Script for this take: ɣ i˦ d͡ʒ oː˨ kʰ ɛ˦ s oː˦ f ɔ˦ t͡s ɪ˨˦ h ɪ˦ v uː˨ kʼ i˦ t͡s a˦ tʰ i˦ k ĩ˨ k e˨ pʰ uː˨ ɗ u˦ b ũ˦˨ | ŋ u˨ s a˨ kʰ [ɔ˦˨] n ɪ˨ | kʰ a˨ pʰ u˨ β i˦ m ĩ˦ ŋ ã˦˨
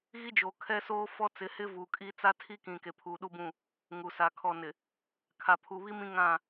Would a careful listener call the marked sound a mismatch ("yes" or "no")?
yes